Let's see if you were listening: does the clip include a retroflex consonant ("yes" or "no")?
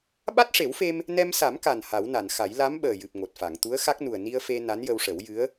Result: yes